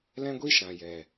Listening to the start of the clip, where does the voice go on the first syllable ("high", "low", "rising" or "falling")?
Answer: high